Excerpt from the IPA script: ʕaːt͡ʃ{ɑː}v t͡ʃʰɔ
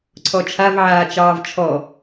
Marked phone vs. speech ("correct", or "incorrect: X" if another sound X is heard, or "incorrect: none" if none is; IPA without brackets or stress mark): correct